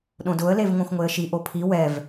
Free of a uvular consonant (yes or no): yes